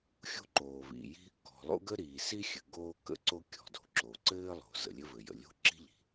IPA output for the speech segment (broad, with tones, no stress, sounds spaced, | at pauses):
xʲ o̤˥ ǃ oː˩ v ḭ˩ j i̤˥ | k ɔ̤˩ lˠ o̰˥ ɡ ə˥ ɾ iː˩ s i˥ xʲ ɘ˩ ɡ oː˥ k ə̰˥ ǀ o˥ kʲ ɔ̤˩ d o̤˩ ǁ o˩ ǀ ɘː˥ lˠ o̤˩ z ə̰˩ lʲ ɘ˥ v ɘ˩ j ə̰˩ lʲ o̤˥ ǁ i̤˥ ʎ i̤˩